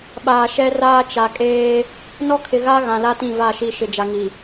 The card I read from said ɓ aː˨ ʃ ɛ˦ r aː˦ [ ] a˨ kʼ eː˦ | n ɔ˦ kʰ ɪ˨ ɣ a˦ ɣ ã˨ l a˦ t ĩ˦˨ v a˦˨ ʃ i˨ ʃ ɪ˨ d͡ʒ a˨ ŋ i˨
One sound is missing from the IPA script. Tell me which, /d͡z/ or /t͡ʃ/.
t͡ʃ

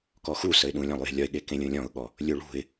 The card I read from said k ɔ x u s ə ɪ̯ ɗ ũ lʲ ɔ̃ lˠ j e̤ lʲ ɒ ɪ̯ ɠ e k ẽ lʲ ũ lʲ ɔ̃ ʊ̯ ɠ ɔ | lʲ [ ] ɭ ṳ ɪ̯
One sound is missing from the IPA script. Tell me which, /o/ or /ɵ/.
ɵ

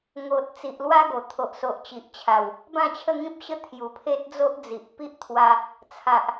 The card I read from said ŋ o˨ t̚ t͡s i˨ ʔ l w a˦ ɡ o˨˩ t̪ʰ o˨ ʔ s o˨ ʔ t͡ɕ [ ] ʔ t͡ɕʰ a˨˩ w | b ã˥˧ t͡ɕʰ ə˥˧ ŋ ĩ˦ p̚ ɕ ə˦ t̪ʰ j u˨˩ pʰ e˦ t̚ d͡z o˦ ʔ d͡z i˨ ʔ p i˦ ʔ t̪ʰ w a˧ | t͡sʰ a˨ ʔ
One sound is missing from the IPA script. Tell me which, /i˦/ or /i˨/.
i˨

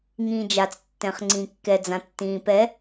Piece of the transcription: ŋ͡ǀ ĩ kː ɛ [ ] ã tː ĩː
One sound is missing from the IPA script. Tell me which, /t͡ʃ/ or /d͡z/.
d͡z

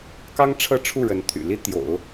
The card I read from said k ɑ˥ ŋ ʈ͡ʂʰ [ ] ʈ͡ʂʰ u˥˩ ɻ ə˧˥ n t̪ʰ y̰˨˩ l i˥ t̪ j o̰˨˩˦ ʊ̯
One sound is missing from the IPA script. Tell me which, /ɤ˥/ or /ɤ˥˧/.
ɤ˥˧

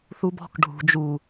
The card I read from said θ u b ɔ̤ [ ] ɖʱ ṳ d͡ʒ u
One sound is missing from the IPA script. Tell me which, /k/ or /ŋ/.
k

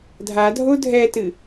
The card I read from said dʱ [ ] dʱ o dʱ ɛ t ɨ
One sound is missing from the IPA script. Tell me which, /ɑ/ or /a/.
a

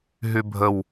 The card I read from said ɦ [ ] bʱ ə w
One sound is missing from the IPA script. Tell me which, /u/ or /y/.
y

